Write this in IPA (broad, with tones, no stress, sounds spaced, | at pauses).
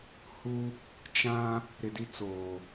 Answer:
h u˦ | t͡ʃ ã˦ | ɾ ɪ˨ d i˦ t͡s oː˨